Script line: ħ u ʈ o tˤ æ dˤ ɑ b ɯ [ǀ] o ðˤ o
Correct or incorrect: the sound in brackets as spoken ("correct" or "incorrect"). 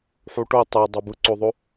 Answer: correct